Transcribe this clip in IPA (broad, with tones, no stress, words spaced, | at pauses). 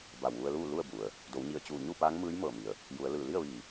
ba˧˩wʋu˧ə̯luː˥˨ lu˥˨ə̯bu˩ə̯ | do˩˧wɲi˧˩ə̯t͡ɕuː˧˩ ɲu˥˨paː˧˥ŋmɯː˧˥j mɤː˧˩mi˩ə̯ | ju˩˧ə̯lɯː˧˩ li˥˨ə̯ʋiː˧˩